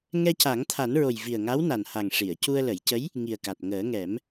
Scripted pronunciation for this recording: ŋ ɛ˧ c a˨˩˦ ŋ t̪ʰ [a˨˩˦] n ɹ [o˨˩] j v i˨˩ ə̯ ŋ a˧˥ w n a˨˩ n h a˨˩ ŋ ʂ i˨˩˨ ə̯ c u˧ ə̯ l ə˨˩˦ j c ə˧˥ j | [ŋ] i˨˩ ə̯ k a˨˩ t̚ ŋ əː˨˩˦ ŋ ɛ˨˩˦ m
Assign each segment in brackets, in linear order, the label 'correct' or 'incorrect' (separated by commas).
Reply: correct, correct, correct